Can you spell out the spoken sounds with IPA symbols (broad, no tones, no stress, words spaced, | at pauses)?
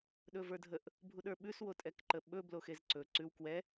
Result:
ɗɵvə˞dʱəʔ | bʱuɗə˞ɓʉs wotʼɛkǃəɓɵ bloxezǀɵ ǀʉw kwɛ